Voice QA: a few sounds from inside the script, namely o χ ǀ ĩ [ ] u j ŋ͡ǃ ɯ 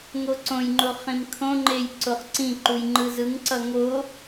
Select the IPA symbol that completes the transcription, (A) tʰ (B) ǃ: B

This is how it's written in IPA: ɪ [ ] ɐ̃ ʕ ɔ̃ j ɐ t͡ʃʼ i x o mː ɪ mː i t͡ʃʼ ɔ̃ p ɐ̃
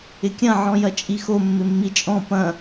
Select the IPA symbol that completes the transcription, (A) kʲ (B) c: A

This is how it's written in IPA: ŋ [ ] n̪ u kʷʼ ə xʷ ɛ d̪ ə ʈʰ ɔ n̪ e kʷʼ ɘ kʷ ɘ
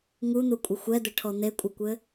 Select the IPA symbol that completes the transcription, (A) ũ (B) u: B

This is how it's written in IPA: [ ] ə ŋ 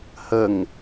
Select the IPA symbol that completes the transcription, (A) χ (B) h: B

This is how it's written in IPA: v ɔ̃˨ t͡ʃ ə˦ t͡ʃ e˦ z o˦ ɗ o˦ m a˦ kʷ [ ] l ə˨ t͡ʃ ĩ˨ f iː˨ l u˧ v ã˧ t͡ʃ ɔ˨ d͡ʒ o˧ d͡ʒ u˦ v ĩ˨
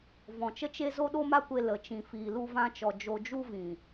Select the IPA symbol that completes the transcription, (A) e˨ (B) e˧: B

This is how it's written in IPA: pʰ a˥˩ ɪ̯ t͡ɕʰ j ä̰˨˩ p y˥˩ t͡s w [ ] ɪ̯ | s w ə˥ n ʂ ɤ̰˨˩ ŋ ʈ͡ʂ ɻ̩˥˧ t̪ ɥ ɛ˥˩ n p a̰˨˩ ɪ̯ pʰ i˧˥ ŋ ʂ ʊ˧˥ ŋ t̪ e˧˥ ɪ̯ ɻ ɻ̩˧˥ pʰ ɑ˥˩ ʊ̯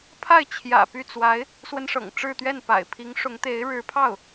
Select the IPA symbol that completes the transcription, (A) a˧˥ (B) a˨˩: A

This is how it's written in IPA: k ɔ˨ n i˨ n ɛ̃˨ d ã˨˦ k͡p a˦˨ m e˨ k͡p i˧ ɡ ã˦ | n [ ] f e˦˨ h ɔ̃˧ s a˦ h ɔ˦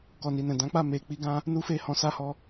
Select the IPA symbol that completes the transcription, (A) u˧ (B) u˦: B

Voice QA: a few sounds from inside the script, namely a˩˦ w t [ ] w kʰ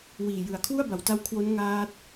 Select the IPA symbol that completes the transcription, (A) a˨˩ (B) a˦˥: B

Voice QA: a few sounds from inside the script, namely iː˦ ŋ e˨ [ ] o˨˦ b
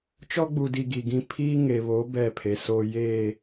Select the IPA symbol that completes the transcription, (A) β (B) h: A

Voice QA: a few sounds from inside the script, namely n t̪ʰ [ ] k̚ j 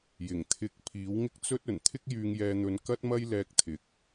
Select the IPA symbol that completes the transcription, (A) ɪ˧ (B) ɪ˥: B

